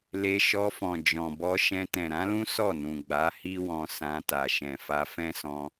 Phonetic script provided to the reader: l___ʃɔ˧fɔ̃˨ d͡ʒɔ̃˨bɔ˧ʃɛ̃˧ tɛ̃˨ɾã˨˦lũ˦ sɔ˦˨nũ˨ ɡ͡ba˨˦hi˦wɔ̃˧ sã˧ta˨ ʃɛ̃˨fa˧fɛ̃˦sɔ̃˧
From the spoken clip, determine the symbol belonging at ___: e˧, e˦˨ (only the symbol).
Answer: e˧